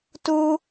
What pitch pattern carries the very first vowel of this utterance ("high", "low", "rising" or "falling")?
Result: high